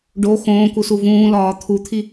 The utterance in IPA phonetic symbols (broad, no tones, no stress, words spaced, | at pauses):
ɖo xõːku suvũːlɒː t̪ʰut̪ʰi